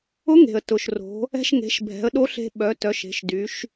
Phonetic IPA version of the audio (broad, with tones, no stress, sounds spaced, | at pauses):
ʊ˧˥ ŋ e̤˩ ə̯ t ʊ˩ ʃ r o̤˩˧ | ɛ̤˧ ʃ ŋ e̤˩˧ ʃ bʱ ɛ̤˩˧ ə̯ ɗ o˧˥ ɬ e̤˧ ɓ œ˩˧ t œ˩˧ ʃ e̤˩˧ ʃ d y˩˧ ʃ